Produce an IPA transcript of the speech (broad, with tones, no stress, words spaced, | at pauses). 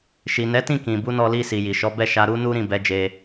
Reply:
ʃi˨nɛ˨˦tĩ˦˨ kĩ˨bu˨˦nɔ˧li˧ si˨ji˨ʃɔ˨˦ bɛ˦˨ʃa˧ɾu˦nu˦ ɾĩ˦˨bɛ˨˦d͡ʒe˧